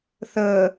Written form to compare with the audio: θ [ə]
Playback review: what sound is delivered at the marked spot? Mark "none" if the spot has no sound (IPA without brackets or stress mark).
əː